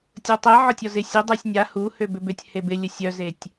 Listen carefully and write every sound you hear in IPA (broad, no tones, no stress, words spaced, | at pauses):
tʲotˤe ʕɔtʲɔzɪ sʲədˤosʲ nʲa hu høbʏbʏtʲ hebɪ lʲəsʲœzetʲ